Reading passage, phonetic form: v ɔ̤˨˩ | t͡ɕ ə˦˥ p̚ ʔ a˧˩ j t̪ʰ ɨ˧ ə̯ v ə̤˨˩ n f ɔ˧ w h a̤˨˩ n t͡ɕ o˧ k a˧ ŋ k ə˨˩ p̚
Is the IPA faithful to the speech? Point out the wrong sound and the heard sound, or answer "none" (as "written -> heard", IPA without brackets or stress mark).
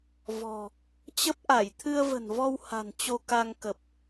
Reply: f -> v